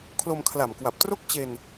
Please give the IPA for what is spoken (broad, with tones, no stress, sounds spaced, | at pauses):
kʰ l o˧ m kʰ l a˨˩ m k w a˨˩ p̚ t r o˥˩ k̚ t͡ɕ e˧ n